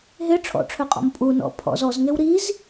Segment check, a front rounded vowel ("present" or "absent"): present